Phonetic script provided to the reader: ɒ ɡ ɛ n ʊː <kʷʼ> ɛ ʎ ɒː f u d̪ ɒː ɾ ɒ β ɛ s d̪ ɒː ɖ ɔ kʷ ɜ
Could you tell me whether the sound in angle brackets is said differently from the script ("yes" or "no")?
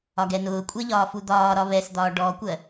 no